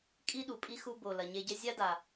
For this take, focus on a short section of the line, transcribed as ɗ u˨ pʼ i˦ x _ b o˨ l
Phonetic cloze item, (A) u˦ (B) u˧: B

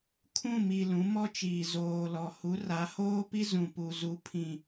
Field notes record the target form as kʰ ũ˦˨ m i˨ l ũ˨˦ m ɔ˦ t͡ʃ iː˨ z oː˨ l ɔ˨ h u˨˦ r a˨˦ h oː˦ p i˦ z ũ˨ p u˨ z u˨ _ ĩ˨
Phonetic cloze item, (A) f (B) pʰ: B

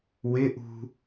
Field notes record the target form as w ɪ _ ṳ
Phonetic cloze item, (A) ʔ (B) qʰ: A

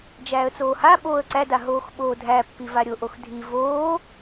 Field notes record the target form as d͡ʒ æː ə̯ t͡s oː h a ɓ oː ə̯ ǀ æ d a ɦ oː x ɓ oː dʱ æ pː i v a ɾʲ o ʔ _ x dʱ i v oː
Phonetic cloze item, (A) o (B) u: A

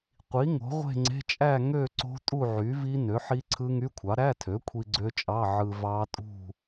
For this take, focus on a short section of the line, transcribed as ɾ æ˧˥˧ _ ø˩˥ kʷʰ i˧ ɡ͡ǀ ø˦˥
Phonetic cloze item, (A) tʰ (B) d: A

